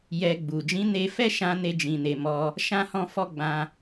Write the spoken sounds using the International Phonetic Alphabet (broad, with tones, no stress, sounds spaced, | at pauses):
j ɛ˧ ɡ͡b u˨ d͡ʒ ĩ˨˦ n e˧ f ɛ˦ ʃ ã˦ n e˦ d͡ʒ ĩ˧ n e˧ m ɔ˦ | ʃ ã˦ h ɔ̃˦ f ɔ˦ ɡ͡b ã˧